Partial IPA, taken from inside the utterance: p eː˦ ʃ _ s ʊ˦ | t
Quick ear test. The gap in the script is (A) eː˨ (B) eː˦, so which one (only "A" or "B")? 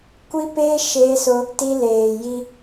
B